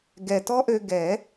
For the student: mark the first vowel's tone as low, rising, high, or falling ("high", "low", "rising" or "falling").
low